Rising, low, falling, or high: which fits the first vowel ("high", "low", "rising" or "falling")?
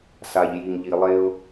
low